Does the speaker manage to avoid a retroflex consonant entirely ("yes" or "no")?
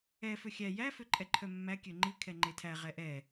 yes